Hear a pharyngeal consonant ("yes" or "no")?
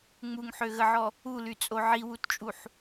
yes